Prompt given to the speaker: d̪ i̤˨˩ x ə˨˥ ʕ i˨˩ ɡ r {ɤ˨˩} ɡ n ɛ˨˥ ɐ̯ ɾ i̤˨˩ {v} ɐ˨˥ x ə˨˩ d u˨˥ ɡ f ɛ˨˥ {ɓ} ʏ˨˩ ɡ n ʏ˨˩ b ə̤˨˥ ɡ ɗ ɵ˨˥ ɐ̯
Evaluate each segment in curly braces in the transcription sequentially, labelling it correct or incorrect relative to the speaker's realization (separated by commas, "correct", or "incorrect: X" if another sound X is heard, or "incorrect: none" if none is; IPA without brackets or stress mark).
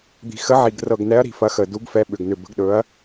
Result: correct, incorrect: f, correct